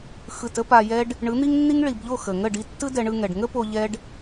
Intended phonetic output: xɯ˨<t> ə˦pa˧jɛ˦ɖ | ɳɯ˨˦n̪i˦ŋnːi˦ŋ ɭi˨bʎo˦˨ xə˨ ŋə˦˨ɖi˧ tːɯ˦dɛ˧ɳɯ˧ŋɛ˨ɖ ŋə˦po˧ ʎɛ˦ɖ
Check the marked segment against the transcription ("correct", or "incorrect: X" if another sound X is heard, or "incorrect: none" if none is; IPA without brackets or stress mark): correct